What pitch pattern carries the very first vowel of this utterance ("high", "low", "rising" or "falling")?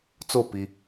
falling